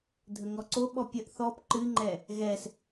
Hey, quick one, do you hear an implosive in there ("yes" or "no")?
yes